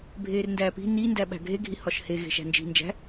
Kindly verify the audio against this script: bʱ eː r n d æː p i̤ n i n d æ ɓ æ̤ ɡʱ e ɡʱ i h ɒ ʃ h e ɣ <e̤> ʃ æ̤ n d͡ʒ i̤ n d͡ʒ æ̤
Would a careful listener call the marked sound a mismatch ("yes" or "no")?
no